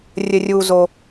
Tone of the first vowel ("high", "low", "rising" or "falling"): low